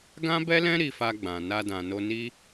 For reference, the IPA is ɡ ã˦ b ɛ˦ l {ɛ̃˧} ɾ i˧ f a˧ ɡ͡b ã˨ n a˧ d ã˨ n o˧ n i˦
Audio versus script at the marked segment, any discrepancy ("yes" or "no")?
yes